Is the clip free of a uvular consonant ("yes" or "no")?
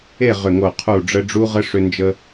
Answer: no